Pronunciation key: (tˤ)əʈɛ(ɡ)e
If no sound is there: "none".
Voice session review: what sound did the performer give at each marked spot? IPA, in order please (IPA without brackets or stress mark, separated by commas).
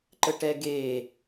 ǃ, ɡ